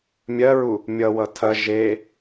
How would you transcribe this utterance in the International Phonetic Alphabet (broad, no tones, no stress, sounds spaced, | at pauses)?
mʲ ɜ ɹ u | mʲ ʌ w ʌ tʰ ɐ ʒ e